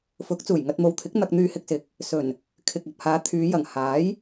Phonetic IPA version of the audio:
fʊ˨˥k̚ t͡suː˨˩jŋɐ˧t̚mo˨˧wt̪ʰɪ˨˥k̚ n̪ɐ˧k̚n̪yː˧hɪ˧k̚ sɪ˨˥k̚ | sɵ˨˩n | kʰɪ˨k̚ ɐ˨p̚haː˨˧t̪ʰyː˨˧jɐ˨˩ŋ haː˨˥j

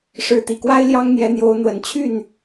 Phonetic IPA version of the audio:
ʂɻ̩˧˥t̪i˨˩kwa˥ɪ̯ ljɑ˥ŋn̪jɛ˧˥n̪jo˧˥ʊ̯n̪wə˨˩n t͡ɕʰy˥˩n

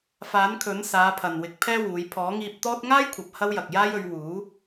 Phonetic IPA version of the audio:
faː˨˥nkʰɵ˨˥nsaː˨˧ pʰɐ˨nwɪ˨˥k̚pʰɛː˥wuː˨˧j pʰɔː˨˥ŋiː˧p̚t̪ɔː˥t̚ ŋaː˥jkʷʰɐ˨p̚ hɐ˥wjɐ˨k̚jaː˥jɵ˨˧ɥ wuː˨˥

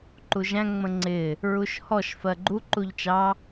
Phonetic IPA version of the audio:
ǃuʒæ̃ ŋ͡mə̃ŋ͡ǀɪ | ɹuʃhɔʃ fɜɡ͡ǃu ǃuʎt͡ʃɑ

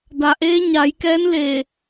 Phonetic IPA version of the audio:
da˩ʔeː˧˥ ɲa˩˧jkɛː˧˥n le˧˩

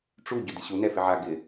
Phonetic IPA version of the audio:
ʈ͡ʂu ɟʊdɪɕu nɛfɪʕa ɡɪ

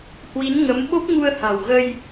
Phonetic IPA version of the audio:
hwi˨˦nŋə˨˦m ɓo˦˥p̚ŋu˧ə̯ha̤˨˩wɣə˧j

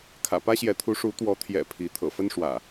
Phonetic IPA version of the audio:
kʰä̰˨˩pä˦ɕjɛ˨˦t̪ʰu˨˦ ʂu˨˦t̪wɔ˨˦t̪ʰjɛ̰˨˩ pʰi˨˦ t̪ʰɤ̰˨˩fə˦nʂwä̰˨˩

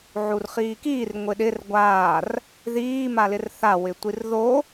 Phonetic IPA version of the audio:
ʕurχiːkiːr ŋʷɪɗɪr ɡʷaːr | ðiː malɪrθa wɪtʷirðo

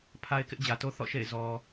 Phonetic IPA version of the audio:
pʰa˦ɪ̯kɪ˦ʔd͡ʑä˨to˦ θɔ̰˦˨ʃḛ˦˨ɪ̯ zɔ˨

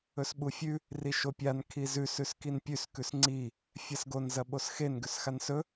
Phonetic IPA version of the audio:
ɵsɓufʲʉ | riʃopʲan kʰizʉs ʉskinpʲʉs kʉsŋ͡ǀi | fʲasɡon zɐɓosxen ɡʉsxansɵ

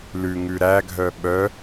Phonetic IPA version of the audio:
lʉŋʉ ɾæɡʱœ ɓœ

